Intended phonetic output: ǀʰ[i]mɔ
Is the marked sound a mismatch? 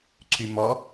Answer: yes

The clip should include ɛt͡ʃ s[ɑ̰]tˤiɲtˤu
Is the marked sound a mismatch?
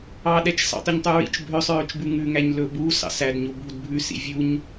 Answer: no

